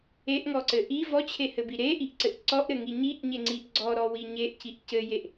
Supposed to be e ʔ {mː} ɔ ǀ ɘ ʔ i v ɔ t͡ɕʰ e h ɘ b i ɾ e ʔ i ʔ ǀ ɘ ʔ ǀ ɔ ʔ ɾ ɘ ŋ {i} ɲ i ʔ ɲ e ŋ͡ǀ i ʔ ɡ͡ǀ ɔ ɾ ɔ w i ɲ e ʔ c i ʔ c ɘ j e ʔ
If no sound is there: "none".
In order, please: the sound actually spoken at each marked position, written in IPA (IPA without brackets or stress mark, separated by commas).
ŋ, i